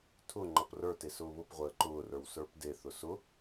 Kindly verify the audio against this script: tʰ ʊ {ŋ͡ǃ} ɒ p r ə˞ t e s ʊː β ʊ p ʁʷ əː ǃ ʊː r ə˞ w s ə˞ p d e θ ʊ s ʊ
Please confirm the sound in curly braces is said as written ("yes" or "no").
yes